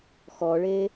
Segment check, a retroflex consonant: present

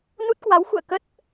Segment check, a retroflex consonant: absent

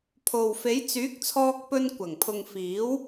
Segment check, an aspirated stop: present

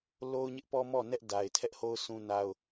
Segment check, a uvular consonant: absent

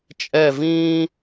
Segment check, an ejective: present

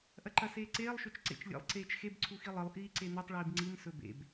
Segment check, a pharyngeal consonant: absent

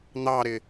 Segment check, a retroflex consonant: absent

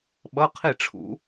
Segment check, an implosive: present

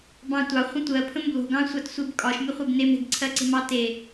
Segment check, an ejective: present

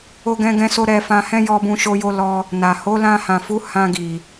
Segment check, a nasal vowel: present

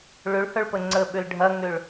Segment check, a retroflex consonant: present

